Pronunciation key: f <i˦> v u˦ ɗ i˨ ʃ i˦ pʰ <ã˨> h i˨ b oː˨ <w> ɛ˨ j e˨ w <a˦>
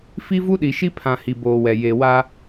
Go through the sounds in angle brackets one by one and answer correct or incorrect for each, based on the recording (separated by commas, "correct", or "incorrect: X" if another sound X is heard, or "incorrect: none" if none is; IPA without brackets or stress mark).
correct, correct, correct, correct